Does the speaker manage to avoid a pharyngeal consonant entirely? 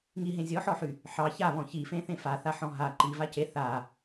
no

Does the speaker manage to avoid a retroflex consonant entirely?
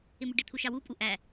no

